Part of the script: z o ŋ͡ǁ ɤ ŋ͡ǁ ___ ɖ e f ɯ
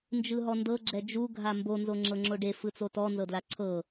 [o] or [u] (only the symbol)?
o